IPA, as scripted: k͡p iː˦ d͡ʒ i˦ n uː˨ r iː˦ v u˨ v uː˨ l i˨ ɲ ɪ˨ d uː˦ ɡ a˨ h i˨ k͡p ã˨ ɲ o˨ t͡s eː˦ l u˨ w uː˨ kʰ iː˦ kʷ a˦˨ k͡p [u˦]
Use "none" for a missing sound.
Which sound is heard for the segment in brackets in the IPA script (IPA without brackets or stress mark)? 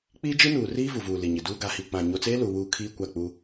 u˦